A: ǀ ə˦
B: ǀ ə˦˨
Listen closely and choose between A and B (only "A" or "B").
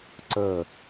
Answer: B